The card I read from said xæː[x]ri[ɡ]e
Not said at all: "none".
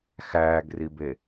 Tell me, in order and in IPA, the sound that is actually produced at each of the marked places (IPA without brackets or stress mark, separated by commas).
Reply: ɡ, b